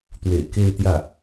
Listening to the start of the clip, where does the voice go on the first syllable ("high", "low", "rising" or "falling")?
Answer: low